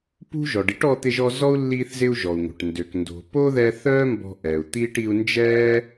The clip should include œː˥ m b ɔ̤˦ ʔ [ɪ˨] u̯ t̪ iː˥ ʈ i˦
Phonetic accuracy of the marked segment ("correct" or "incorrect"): incorrect